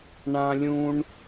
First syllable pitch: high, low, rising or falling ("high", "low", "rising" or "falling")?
high